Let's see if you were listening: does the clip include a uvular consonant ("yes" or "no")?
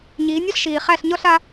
yes